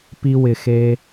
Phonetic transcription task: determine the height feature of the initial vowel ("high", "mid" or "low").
high